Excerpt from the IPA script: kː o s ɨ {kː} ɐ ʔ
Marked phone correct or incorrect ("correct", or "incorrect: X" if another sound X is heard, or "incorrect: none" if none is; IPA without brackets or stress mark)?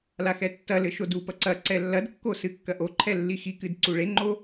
correct